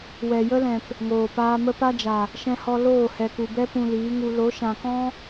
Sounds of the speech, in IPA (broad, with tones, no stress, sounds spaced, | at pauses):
w ɛ˨ j ə˦ l ɛ̃˨ p | ŋ oː˨ p aː˧ m ə˦ p a˦ d͡ʒ a˨ | ʃ ɛ̃˧ h ɔ˧ l oː˦˨ h ɛ˨ k u˨ b ɛ˦ p ũ˧ l iː˨˦ ŋ u˧ l o˨˦ ʃ ã˨ k ɔ̃˦